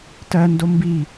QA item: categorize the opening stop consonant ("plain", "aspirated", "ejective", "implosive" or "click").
plain